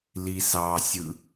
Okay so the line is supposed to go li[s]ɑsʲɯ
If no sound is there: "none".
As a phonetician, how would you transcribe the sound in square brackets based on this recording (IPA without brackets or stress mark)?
s